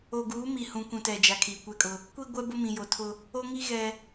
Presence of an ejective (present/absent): present